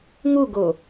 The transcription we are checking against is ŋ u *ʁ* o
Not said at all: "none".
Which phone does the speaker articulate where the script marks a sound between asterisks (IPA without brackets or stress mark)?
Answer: ɡ